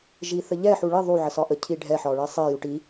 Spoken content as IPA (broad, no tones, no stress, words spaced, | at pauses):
ʒiθəʎɛ ħuɭi ðˤu ʕəsɒʔə cʰiɖʱɛ ħɒɭisˤi juʈi